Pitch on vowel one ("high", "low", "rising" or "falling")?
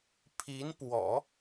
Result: rising